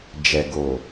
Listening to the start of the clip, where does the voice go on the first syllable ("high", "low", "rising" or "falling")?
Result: low